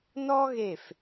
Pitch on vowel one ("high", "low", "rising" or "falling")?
high